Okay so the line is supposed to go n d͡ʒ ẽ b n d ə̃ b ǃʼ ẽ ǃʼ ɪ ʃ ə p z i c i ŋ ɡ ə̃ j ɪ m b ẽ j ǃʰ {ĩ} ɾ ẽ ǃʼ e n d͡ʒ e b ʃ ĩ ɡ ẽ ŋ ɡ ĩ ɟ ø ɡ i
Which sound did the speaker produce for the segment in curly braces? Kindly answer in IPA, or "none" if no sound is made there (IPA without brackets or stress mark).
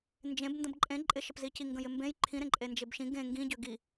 ĩ